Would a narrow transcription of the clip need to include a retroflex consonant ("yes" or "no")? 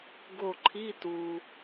no